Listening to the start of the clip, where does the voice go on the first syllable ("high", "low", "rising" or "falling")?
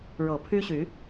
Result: low